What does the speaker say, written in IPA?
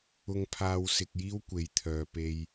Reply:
ʊ˧ ŋ pʰ aː˧ w s ɪ˧ k̚ j iː˥ w kʷ e˨˧ j t̪ʰ œː˨ p e˧ j

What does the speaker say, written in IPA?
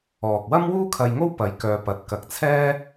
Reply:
ɔː˨ k̚ w ɐ˥ m w uː˥ kʰ ɐ˧ j ŋ o˥ w p ɐ˨˧ j k œː˧ p ɐ˨˥ t̚ k ɐ˨˥ k̚ t͡sʰ ɛː˥

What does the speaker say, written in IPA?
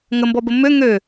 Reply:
ŋ ə m b ɔ b ə m ø ŋ ø

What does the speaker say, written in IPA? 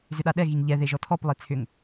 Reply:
z ʏ ɗ a ɗ ɛ ɣ i ŋ ʎ ɛ ð e ʒ ɔ tʰ ɔ p lˠ e t͡sʰ ʏ ŋ

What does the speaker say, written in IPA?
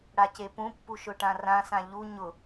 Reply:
ɽ a c e p ũ pː u ʃ ʊ ʈ ã r ã s ã ʎ u ɲ ʊ

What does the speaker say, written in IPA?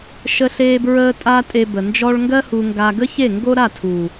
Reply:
ʃ ə˧ ɬ eː˧ b ɹ əː˧ tʼ a˧ tʼ e˧ b ə˨ n d͡ʒ ɔ˦ ɭ ŋ ɡ ɜ˦ h u˧ ŋ ɡ a˧ ɡ ə˦ ç e˦˨ ŋ ɡ o˦ ɾ a˦˨ tʰ u˨

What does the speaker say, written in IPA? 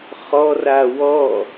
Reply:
χ ɔ r a w ɔ

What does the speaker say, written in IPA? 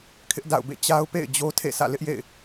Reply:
kʰ ɪ˦ ʔ d a̰˦˨ ʊ̯ b ḛ˦˨ t͡ɕ a˦ ʊ̯ p ḛ˦˨ ɪ̯ d͡ʑ o˦ tʰ ḛ˦˨ sʰ ä̰˦˨ l ɪ˦ ʔ j ḛ˦˨ ɪ̯

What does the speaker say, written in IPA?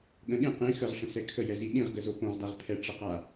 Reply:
ɠ ə̃ ɗ ĩ q ĩ x ə ʁ ʂ ə̃ s ɛ kʰ ə j ɛ z i ɗ ĩ ʁ ɡ ə z o p õ ʁ d a ʁ pʰ ɛ ʈ͡ʂ ə q a

